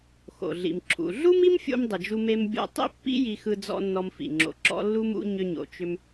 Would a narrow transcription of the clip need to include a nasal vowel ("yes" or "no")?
no